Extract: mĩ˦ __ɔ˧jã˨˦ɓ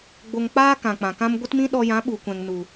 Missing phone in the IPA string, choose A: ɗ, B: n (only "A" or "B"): A